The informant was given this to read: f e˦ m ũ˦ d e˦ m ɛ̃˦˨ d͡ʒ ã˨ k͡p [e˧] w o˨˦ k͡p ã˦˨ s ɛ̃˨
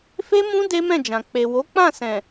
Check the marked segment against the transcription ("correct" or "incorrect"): incorrect